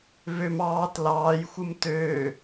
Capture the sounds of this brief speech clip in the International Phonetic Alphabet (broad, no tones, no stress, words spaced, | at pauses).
vøm ɑːt lɑːj xʷɯmtøː